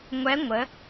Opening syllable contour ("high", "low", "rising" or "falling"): rising